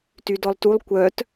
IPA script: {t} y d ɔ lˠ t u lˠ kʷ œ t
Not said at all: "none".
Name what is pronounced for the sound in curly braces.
t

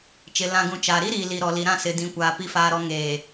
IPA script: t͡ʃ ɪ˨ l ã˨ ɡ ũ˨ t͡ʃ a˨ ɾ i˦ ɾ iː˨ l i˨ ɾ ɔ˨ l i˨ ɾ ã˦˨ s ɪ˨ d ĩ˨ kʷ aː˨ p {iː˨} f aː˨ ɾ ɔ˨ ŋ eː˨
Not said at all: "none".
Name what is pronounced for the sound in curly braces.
i˨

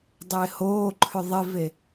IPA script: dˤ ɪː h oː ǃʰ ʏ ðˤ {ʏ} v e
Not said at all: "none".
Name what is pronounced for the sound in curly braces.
ɪ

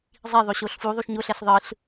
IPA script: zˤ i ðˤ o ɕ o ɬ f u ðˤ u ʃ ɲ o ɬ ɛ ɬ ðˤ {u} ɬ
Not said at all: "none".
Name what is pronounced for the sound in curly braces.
ɯ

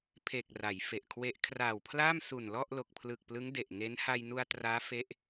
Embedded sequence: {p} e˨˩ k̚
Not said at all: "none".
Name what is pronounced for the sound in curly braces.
pʰ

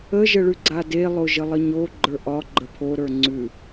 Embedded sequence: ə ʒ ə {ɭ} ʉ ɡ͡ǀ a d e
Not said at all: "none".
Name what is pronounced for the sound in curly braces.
ɭ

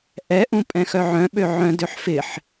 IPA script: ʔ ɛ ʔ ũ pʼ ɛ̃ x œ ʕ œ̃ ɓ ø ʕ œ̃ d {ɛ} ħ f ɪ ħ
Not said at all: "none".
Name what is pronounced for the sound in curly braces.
ø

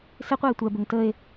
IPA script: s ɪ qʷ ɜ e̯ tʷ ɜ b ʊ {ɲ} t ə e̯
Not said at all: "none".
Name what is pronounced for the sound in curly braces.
ŋ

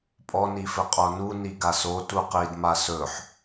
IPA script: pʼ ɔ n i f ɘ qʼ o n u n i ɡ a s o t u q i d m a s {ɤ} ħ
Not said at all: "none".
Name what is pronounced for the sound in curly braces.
ɵ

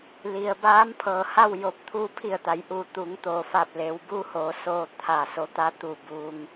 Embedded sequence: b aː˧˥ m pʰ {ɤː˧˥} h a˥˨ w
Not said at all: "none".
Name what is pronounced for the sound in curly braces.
ɤː˩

